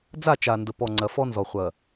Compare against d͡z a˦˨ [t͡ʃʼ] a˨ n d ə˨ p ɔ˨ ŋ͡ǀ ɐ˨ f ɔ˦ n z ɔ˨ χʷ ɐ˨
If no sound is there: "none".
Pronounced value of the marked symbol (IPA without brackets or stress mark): t͡ʃ